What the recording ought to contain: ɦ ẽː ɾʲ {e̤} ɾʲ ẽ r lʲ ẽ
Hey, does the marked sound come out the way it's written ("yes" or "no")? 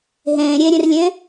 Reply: no